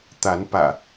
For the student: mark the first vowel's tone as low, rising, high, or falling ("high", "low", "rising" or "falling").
rising